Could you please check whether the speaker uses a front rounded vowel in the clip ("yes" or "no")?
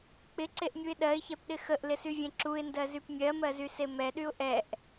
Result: yes